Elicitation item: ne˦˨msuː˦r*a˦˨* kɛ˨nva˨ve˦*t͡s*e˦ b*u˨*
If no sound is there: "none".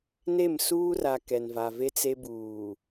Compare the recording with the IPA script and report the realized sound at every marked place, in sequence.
a˨, t͡s, uː˨

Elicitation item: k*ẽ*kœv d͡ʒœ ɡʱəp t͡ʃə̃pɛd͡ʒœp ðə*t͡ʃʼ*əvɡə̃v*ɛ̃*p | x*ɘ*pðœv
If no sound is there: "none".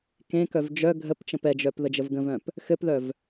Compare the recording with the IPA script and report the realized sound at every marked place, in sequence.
ẽ, d͡ʒ, œ̃, ɘ

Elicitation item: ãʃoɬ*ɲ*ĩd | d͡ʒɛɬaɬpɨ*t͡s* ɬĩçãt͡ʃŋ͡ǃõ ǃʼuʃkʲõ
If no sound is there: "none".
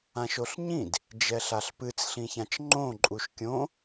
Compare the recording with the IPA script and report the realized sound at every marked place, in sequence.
ɲ, t͡s

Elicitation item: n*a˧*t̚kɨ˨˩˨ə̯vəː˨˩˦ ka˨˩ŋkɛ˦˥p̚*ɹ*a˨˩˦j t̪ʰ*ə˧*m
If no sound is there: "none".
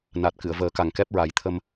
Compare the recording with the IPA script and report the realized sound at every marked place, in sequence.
a˨˩, ɹ, ə˧

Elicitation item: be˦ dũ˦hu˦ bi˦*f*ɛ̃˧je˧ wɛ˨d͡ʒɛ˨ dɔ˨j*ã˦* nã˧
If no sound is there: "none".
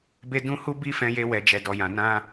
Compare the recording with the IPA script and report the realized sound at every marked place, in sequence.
f, ã˨

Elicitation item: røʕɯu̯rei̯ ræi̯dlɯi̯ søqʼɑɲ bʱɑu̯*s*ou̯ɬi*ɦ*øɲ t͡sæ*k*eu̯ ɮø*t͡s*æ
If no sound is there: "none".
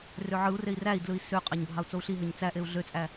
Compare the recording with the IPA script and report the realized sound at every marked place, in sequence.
t͡s, ɦ, ʔ, t͡sʼ

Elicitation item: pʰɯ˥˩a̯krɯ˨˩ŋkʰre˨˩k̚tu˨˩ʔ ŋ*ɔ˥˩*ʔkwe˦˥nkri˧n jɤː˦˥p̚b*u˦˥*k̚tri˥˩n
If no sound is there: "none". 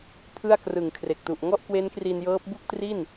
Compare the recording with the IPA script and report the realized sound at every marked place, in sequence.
ɔ˥˩, u˥˩

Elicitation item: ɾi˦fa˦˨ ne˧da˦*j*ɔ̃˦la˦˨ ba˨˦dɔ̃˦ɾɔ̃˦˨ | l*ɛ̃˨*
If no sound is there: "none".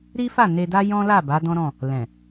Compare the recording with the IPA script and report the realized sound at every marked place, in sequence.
j, ɛ̃˨

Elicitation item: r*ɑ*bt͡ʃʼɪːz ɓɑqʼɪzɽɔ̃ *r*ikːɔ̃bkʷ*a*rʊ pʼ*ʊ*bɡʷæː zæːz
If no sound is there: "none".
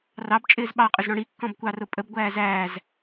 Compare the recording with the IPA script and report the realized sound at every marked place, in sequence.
ɑ, ɽ, ɑ, ə

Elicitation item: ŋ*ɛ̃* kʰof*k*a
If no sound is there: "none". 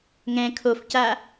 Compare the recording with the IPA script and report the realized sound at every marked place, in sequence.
ɛ̃, c

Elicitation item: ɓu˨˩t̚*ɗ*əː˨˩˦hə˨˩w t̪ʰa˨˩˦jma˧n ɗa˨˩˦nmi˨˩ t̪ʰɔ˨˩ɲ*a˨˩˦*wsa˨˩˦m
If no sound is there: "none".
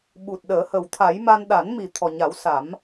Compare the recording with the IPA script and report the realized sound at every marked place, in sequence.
ɗ, a˨˩˦

